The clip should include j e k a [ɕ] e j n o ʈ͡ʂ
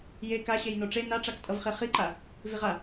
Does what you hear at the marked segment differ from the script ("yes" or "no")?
no